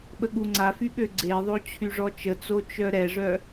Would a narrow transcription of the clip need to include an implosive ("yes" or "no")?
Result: yes